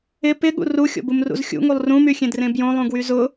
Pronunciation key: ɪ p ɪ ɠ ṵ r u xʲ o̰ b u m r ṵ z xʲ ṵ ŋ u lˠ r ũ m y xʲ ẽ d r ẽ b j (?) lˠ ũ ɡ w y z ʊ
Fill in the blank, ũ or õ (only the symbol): õ